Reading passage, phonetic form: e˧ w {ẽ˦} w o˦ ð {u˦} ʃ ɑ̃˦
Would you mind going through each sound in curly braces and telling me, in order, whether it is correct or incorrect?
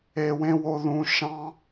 correct, incorrect

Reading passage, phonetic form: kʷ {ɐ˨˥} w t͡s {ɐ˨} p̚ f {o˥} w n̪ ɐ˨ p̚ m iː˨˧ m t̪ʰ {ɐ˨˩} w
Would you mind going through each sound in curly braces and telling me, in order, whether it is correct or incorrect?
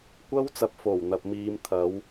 incorrect, correct, incorrect, incorrect

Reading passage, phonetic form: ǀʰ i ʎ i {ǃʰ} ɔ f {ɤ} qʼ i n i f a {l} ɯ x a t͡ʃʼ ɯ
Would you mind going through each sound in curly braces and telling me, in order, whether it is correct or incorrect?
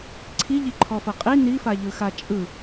correct, correct, incorrect

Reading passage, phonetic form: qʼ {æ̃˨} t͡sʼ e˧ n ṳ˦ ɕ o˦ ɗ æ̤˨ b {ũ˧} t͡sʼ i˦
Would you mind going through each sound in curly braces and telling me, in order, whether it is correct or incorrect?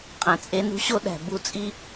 correct, incorrect

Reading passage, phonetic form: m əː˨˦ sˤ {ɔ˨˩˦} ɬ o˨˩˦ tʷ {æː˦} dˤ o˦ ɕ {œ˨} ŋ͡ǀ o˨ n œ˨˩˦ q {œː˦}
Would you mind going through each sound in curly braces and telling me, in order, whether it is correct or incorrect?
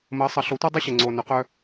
incorrect, incorrect, incorrect, correct

